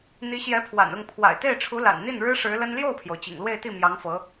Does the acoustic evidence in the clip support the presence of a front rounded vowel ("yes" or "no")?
no